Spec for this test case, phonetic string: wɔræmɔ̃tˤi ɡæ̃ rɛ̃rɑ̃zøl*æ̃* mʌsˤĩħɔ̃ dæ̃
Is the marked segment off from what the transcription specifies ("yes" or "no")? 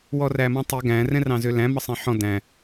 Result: no